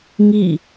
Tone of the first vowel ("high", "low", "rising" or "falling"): falling